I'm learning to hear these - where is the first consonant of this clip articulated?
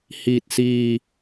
throat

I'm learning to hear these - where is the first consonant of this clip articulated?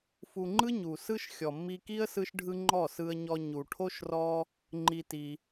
lips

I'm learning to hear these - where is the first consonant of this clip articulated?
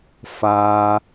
lips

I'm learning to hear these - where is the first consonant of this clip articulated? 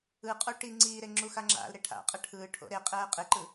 uvula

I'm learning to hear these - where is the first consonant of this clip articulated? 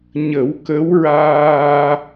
palate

